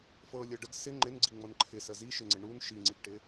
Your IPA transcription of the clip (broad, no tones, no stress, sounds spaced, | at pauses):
f ɤ lʲ ɤ ɖ ə ɡ s ɪ ŋ͡ǃ ɪ n ɡ͡ǀ i ŋ͡m ɤ n ǃʰ ɪ s ə z i ʃ ɪ ŋ͡ǀ ɪ ɳ u n ʃ i ŋ͡ǀ i ɡ ʈ ɪ